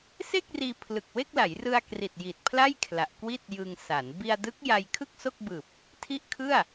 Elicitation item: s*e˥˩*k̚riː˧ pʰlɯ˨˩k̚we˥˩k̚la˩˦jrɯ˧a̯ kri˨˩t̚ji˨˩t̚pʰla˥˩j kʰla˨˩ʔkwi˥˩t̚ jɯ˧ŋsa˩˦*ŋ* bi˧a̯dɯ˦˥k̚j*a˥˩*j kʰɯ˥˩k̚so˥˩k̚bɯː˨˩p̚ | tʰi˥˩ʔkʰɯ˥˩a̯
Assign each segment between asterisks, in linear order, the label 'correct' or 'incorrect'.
correct, incorrect: n, incorrect: a˧

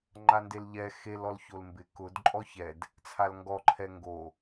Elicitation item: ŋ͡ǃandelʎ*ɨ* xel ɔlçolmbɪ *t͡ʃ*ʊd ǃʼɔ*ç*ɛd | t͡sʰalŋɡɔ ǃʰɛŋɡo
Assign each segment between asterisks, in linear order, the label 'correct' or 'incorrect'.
incorrect: ɛ, incorrect: k, correct

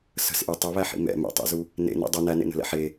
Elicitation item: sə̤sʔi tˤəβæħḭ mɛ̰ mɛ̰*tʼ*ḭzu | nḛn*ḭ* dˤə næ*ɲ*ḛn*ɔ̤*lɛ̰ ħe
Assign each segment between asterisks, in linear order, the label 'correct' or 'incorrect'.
incorrect: tˤ, correct, incorrect: n, incorrect: ə̤

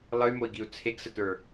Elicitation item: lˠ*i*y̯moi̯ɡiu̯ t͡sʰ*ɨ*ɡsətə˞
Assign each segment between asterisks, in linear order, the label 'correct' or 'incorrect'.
incorrect: ɨ, incorrect: e

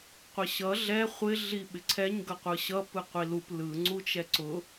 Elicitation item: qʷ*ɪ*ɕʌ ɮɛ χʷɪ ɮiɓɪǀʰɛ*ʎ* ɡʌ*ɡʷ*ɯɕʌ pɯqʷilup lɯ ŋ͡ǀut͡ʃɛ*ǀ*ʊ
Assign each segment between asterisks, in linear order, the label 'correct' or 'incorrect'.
correct, incorrect: ɲ, incorrect: qʷ, correct

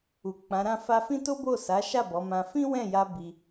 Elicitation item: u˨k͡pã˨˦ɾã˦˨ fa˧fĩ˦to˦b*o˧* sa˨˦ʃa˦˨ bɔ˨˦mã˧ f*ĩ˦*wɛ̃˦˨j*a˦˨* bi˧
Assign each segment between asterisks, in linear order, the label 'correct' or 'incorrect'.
incorrect: o˦˨, correct, incorrect: a˧

